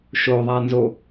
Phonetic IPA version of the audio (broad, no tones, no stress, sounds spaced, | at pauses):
ʃ o ðˤ a n z o